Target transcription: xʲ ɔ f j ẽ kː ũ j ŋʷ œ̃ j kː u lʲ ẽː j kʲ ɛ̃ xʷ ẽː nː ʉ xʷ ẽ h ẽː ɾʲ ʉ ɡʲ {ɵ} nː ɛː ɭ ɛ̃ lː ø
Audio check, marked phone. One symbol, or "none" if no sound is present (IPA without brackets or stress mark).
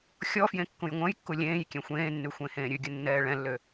ɵ